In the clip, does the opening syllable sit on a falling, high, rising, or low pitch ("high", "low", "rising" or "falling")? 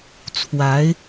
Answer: rising